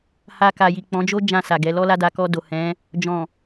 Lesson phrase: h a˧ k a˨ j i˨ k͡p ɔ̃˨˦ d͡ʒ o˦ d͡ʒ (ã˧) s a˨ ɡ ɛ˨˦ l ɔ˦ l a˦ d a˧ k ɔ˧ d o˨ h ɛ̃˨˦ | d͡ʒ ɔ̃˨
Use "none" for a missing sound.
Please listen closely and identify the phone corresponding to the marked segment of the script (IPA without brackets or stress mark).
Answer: ã˦˨